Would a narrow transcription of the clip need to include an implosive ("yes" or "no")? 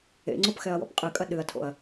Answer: yes